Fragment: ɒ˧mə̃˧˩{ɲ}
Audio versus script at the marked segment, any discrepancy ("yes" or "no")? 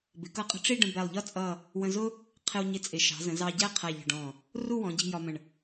yes